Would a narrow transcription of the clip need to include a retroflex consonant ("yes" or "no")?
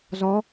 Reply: no